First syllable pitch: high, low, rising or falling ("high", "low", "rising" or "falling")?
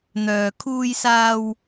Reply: low